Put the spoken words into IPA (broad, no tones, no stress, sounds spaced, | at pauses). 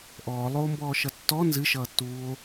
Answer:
ʔ ɔː lˠ oː m b ɔː ʃ ʌ tː ɔ n z ɨ ʃ ʌː tː uː o̯